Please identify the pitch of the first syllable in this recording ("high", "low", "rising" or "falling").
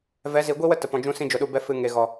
rising